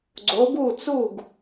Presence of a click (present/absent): present